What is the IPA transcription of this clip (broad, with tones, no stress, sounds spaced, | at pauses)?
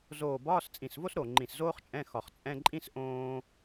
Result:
z oː˧˩ b ɒː˧˥˧ s t͡sʼ ĩ˧˩ s v o˥ s ɾ o˧˩ ŋ͡ǃ ĩ˧˩ s z oː˥ χ t͡ʃʼ ɛ̃˧˥˧ x ɒ˧˩ χ t͡sʼ ɛ̃˧˥˧ ǃʼ ĩ˥ s ʔ õː˥